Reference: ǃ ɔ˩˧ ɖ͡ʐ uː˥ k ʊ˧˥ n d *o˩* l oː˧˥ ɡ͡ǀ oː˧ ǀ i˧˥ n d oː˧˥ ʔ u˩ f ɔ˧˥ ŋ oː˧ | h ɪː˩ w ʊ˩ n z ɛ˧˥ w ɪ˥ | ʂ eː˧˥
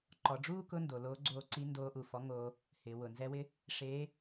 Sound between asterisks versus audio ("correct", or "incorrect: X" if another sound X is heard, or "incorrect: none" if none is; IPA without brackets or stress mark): correct